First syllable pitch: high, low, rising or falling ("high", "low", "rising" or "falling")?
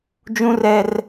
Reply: high